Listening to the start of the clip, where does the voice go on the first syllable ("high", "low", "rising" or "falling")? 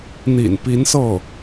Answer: low